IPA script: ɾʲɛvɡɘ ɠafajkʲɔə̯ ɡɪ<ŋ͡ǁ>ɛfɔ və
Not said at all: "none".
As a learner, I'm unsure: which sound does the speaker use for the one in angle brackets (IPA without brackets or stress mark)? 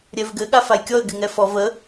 ŋ